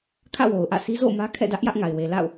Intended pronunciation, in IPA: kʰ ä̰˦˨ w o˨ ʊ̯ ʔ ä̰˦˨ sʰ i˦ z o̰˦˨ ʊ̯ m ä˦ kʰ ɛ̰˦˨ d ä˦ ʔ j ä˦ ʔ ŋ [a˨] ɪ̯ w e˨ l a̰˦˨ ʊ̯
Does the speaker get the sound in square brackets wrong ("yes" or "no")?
no